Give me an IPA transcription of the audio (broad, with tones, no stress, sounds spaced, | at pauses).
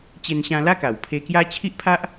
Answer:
t͡ɕ e˧ n ɕ ã˧ l a˦ k a˨˩ w pʰ e˧ k j a˦ t͡ɕʰ i˦ ʔ pʰ a˦ ʔ